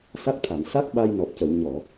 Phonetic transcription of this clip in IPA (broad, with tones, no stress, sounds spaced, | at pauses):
s a˦˥ k̚ t̪ʰ a˨˩˨ m s a˦˥ k̚ ɓ a˧ j n ɔ˨˩ p̚ c ə˨˩˨ w ɲ ɔ˨˩˨